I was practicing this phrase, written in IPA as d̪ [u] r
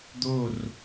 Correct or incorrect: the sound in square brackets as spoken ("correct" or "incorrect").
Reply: incorrect